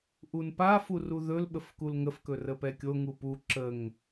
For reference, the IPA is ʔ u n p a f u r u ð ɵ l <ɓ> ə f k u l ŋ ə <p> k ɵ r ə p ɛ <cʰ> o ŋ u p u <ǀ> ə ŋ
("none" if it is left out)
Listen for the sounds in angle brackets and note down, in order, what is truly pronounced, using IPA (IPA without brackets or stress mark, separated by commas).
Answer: ɓ, f, kʲ, ǁ